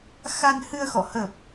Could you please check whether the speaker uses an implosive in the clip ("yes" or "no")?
no